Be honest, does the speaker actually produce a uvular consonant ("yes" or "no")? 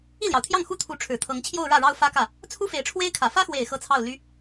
no